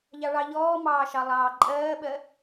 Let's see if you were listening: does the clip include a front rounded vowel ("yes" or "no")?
no